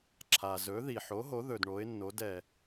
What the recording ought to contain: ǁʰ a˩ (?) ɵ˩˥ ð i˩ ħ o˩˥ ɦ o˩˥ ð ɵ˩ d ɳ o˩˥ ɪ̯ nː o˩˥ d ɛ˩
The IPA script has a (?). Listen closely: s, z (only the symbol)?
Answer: z